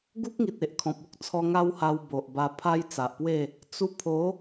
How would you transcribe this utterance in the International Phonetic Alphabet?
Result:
ɡ u˦ k̚ ŋ i˨ t̚ e˨ ʔ kʰ ɔ̃˨ p̚ u˦ k̚ t͡sʰ ɔ˧ ŋ a˦ w h a˧ w b o˨ ʔ b a˧ pʰ a˦ j t͡s a˨ ʔ p w e˥˧ | t͡s u˧ pʰ o˨˦

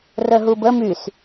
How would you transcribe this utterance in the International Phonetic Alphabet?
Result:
r ə ɦ u b ə m y s

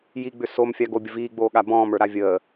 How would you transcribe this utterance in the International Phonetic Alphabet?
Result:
j i ɡ͡b ʏ s o m fʲ a ɡ o bʲ ə v iː ɡ͡b oː ɠ a b ɔ̃ː m ə˞ ɾ a vʲ əː

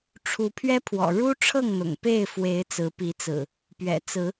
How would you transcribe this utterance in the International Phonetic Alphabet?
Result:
ʈ͡ʂʰ u˨˦ pʰ ɥ ɛ˦ pʰ w ɔ̰˨˩ ɻ u˦ ʈ͡ʂʰ ɤ˥˨ ŋ n̪ ʊ̰˨˩ ŋ p e˥˨ ɪ̯ f w e˨˦ ɪ̯ t͡s ɹ̩˨˦ p i˨˦ t͡s ɹ̩˨˩ | p ɥ ɛ̰˨˩ t͡s ɹ̩˨˦

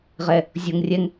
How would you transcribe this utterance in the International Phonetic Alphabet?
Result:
ʁ ɛ | zʲ o ŋ rʲ ɛ ŋ

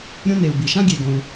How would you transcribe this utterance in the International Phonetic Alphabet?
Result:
ɾʲ õ˦ n e˩ u̯ b i˩ ʃ ã˦ ɡʲ e˩ ɡ õ˩ u̯

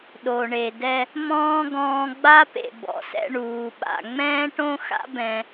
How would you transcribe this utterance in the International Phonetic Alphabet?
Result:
ɗ o˨ ɳ e˨ d ɛ˧ | m ɔ̃ː˦ ɡ ɔ̃ː˧ ɡ͡b a˦ p ḛ˨ b ɔ̰˨ s ɛ̰˦ ɳ uː˨ ɓ a̰˨ ŋ͡m ɛ̃ː˦ ʈ õ˦ x a̰˦ b ɛ̃˧

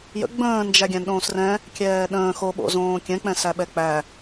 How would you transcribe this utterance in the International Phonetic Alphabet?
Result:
j ə̰ ɡ͡b ə̃ː n d͡ʒ æ ɡʲ æ̃ n ɗ õː s r ɛ̃ | kʲ ɛː ɗ ə̃ː x o ɓ o̰ z õː kʲ ɛ̃ k͡p ɛ̃ s æ ɓ ɛ k͡p æ

